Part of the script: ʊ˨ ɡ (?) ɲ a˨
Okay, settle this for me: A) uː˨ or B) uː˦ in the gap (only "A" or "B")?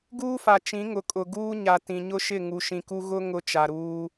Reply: B